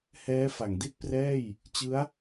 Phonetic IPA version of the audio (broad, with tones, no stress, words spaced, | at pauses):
hɛː˦˥fa˩˦ŋdi˥˩t̚prɛː˥˩j | t͡ɕɯ˦˥a̯